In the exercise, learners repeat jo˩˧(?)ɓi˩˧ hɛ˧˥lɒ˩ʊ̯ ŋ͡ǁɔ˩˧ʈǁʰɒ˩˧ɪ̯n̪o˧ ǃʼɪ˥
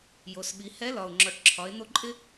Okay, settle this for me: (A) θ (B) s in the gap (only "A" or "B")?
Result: B